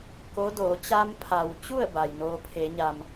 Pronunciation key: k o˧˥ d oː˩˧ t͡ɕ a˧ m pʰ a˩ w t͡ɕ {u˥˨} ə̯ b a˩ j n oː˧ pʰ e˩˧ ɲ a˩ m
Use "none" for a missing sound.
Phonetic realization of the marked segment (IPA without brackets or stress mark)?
u˥˨